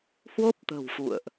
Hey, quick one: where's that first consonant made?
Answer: throat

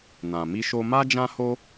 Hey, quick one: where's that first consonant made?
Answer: tongue tip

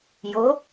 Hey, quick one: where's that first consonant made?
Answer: palate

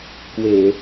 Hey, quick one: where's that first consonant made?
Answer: velum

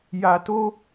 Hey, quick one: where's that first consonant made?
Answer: palate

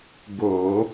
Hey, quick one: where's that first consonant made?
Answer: velum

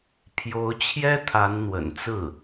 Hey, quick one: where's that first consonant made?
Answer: lips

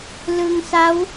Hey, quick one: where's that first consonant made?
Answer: tongue tip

